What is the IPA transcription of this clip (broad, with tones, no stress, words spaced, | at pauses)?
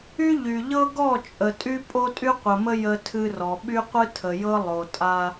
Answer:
y˦ʎy˨ ʎɤ˦ɡɔ˦˨ t͡ʃʼə˨tʼy˦ pʼo˦tʼy˦qʷə˨mə˦ jə˦tʰɨ˦ rɔ˨ ɓy˦qʷɨ˦tʰə˨jɤ˦ lˠo˨tʼa˦